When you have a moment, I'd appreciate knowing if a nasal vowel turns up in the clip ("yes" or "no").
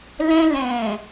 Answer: yes